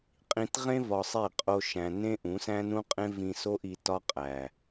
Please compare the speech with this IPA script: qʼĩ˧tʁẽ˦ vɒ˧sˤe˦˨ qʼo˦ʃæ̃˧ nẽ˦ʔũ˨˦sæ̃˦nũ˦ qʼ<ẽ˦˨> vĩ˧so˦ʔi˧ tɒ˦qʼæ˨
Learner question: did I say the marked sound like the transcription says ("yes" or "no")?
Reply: no